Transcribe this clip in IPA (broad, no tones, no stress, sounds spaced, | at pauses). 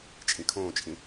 t͡ʃʼ ĩ kʰ õː t͡ʃʼ ĩ